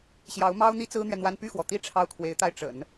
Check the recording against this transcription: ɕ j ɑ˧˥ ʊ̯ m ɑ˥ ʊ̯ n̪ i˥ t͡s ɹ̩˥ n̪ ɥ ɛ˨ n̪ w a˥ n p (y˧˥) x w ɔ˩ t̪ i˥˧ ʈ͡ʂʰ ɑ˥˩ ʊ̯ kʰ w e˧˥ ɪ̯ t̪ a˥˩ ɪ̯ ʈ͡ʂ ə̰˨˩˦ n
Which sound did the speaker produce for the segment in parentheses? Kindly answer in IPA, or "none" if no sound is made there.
y˥˩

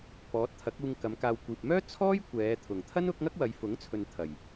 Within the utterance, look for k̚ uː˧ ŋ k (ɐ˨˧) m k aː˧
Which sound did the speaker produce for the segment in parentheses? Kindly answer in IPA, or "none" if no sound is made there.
ɐ˨˧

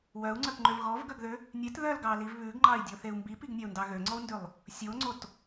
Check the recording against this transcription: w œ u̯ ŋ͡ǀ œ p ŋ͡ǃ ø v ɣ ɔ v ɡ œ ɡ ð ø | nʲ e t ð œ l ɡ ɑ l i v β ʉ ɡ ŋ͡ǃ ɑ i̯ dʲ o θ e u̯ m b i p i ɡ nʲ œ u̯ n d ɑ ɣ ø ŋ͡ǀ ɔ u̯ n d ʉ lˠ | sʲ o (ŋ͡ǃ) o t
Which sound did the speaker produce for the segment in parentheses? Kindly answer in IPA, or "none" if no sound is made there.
ŋ͡ǀ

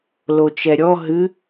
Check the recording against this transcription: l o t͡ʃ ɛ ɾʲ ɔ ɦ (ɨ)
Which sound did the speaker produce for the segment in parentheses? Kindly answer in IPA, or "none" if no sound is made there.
ɨ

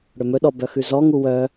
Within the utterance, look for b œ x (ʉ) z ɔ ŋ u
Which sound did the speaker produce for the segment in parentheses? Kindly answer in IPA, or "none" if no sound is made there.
ʉ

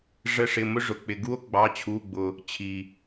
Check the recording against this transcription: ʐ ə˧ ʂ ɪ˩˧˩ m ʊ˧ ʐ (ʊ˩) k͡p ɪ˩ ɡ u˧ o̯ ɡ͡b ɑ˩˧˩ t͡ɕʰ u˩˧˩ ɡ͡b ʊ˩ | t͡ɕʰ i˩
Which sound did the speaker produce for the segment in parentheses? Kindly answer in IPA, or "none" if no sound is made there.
ʊ˩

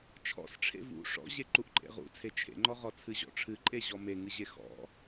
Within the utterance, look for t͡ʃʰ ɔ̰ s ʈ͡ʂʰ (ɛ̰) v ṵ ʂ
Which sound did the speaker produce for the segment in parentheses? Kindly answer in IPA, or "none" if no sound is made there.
ḛ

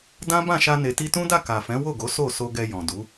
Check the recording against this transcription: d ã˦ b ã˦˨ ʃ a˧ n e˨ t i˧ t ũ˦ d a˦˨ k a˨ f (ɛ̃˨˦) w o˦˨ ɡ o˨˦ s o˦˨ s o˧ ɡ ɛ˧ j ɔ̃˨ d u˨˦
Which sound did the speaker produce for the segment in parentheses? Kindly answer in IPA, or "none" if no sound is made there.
ɛ̃˨˦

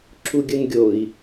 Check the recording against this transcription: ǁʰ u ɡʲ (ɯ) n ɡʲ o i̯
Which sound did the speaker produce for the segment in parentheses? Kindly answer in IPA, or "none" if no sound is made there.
ɯ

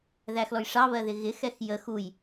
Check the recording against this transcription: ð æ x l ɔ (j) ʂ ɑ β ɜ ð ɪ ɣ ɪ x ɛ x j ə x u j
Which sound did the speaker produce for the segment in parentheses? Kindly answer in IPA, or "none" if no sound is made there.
j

